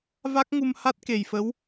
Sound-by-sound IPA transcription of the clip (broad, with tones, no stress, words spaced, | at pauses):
va˦˥k̚ŋu˧mha˦˥t̚ ke˨˩jfə˧˥w